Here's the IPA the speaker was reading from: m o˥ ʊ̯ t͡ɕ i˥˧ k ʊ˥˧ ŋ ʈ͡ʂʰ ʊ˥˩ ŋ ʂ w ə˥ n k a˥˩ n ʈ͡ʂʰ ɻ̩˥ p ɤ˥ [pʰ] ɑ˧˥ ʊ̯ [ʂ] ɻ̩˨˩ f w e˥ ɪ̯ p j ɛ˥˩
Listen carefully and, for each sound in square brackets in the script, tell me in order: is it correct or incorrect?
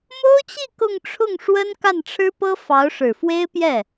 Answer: incorrect: f, correct

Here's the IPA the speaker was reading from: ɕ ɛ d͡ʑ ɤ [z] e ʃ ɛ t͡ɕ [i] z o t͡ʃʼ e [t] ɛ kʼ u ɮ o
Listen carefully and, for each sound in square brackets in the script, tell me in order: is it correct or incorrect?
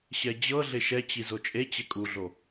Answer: incorrect: ɮ, correct, incorrect: t͡ɕ

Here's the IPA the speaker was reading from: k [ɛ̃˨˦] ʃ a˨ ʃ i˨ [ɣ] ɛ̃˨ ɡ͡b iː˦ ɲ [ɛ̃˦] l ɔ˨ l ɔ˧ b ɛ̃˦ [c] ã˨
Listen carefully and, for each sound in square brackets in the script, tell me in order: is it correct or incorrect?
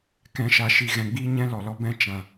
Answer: correct, correct, correct, incorrect: t͡ʃ

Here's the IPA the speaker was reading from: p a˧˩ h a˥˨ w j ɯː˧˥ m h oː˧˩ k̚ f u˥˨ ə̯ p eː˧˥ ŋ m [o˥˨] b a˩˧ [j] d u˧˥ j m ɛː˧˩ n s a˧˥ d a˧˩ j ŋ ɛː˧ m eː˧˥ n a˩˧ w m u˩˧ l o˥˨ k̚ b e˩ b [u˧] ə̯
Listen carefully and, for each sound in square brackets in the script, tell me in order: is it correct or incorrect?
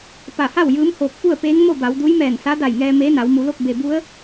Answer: correct, incorrect: w, incorrect: u˧˥

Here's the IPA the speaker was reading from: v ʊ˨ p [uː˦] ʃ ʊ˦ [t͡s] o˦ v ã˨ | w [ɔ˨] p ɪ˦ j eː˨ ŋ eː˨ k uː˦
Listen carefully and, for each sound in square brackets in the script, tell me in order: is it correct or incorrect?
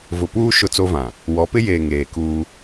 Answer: correct, correct, incorrect: ɔ˨˦

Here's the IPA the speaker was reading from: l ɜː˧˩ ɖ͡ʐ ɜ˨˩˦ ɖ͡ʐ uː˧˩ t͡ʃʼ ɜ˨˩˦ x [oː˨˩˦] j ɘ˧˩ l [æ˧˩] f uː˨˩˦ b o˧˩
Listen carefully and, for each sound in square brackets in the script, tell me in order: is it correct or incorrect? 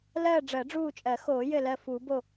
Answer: correct, incorrect: ɜ˧˩

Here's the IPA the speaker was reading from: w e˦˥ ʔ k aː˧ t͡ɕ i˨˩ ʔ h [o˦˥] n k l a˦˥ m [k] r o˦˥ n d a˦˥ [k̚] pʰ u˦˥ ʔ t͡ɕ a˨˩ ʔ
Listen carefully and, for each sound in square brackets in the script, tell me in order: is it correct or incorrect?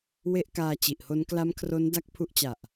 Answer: correct, incorrect: kʰ, correct

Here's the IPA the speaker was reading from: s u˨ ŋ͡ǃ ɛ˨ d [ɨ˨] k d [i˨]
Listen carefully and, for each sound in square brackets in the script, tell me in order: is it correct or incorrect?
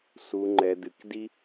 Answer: correct, incorrect: i˦

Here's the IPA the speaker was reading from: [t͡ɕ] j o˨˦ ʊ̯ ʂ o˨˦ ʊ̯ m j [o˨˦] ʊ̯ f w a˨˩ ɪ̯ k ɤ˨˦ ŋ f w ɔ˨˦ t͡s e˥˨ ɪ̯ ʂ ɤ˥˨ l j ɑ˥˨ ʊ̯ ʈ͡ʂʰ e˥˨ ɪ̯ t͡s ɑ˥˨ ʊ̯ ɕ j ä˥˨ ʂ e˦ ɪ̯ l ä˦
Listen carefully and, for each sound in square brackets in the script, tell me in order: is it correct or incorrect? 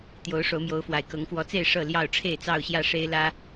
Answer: incorrect: t̪, correct

